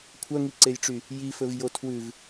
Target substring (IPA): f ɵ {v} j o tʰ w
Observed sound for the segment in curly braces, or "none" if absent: v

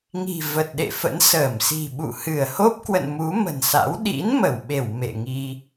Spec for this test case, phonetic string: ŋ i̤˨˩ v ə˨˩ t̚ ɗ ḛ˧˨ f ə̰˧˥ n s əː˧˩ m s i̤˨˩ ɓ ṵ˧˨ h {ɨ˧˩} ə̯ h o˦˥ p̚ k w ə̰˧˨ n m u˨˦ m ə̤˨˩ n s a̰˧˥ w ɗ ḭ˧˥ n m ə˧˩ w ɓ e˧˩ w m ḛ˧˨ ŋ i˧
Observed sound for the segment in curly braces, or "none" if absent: ɨ˧˩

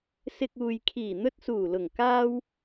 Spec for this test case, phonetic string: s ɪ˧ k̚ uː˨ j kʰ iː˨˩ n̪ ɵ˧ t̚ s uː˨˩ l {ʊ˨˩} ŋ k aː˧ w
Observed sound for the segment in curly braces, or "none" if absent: ʊ˨˩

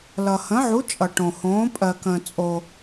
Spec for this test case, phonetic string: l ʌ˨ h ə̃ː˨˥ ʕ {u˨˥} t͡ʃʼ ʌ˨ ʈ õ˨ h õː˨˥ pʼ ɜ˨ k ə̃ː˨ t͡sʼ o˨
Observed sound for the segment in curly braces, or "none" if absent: u˨˥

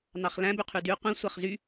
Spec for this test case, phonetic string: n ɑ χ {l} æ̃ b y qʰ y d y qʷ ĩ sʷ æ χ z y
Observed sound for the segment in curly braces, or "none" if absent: l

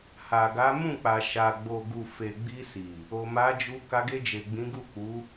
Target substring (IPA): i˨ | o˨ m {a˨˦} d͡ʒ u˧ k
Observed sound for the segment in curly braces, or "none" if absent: a˨˦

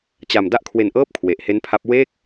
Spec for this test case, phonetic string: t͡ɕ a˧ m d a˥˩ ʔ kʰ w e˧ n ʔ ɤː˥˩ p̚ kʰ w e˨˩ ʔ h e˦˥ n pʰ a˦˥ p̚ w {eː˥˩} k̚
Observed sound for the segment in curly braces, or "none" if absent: eː˥˩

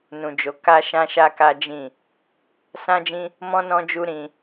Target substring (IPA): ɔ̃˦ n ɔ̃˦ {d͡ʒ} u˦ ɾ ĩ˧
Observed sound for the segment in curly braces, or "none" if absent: d͡ʒ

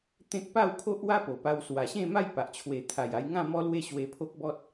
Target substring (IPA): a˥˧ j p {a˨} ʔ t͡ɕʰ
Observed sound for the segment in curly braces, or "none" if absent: a˨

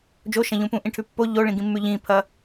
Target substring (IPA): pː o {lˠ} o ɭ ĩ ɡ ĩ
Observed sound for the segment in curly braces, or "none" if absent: ʎ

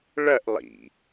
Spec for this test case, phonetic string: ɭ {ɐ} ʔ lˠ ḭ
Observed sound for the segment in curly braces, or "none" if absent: ɐ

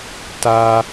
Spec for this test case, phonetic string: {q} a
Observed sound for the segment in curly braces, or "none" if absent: t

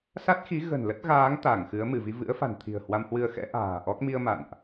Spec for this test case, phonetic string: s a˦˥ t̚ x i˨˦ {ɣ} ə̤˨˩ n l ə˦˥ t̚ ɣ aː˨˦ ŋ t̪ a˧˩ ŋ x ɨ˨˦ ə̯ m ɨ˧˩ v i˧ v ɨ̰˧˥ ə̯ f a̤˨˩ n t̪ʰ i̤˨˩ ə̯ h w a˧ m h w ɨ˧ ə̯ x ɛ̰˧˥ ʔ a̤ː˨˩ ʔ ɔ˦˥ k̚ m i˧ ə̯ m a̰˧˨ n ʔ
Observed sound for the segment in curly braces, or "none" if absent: ɣ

